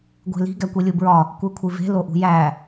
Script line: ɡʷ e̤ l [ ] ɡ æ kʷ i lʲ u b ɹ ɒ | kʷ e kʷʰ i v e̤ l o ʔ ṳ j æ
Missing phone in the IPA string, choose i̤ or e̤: i̤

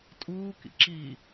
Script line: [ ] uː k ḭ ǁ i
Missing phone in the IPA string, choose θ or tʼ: tʼ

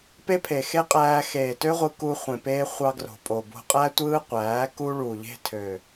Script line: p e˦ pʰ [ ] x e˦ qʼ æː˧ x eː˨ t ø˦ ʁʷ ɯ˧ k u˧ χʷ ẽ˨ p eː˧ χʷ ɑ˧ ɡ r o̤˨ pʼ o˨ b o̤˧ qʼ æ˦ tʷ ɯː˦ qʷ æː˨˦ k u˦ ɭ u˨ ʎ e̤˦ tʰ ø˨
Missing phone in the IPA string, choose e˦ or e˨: e˨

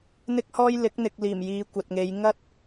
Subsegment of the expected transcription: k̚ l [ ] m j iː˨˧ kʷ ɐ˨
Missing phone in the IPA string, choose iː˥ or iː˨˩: iː˨˩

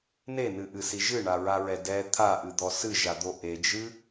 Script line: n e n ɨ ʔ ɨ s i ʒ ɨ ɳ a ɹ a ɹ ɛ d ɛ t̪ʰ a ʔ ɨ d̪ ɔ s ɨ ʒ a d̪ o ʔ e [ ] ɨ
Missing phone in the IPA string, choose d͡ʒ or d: d͡ʒ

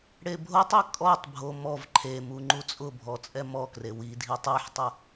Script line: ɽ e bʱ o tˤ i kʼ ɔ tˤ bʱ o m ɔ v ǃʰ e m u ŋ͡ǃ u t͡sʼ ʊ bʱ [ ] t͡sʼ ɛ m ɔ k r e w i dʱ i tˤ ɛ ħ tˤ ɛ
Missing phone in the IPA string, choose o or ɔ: ɔ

